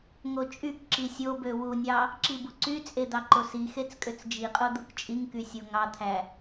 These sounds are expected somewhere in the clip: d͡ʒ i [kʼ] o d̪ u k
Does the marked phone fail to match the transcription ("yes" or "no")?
yes